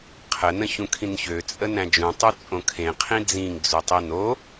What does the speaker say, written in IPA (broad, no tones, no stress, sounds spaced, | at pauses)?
qʰ ə n ə̃ ç ũ kʰ ĩ n ç ø t͡sʼ ə n æ̃ d͡ʒ ũ tˤ u t͡sʼ õ kʰ ẽ qʰ ĩ d͡z ĩ ŋ d͡z u tˤ i n o